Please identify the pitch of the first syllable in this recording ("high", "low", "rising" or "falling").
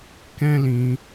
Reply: high